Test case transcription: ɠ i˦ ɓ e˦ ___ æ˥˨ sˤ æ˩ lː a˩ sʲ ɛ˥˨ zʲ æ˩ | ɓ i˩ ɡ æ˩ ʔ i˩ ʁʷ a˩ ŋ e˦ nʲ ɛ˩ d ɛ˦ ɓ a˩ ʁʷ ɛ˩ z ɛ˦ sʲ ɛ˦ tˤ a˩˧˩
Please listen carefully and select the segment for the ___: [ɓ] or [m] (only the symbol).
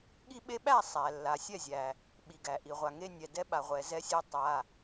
ɓ